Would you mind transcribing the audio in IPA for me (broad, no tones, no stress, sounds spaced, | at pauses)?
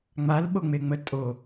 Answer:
ŋ͡m a l ɓ o ŋ͡m e ŋ͡m ə tʼ o